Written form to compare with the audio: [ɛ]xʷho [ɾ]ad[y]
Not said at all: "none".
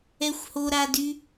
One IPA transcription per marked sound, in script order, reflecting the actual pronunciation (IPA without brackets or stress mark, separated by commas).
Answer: ɛ, ɾ, y